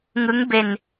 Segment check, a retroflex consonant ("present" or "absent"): absent